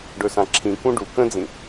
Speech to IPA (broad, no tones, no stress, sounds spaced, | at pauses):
ɖ ɵ s ã ǁʰ ĩ k ũ ɖ u k ə̃ d͡z ĩ